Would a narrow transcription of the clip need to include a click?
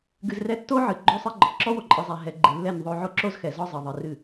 yes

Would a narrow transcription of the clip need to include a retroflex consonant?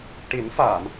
yes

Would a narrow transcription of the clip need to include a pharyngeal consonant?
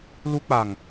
no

